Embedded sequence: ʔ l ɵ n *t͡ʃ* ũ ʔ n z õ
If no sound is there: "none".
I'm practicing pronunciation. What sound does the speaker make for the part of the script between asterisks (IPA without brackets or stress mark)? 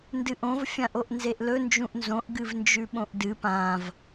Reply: d͡ʒ